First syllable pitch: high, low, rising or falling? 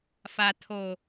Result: low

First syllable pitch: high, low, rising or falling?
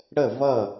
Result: falling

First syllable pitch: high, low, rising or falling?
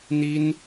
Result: high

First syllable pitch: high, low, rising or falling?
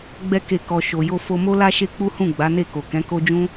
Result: high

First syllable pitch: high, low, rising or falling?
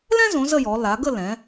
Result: high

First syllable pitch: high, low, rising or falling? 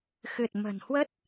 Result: low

